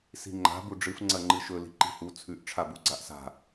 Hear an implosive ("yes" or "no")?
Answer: no